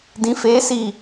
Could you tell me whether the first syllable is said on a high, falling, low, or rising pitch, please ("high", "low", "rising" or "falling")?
rising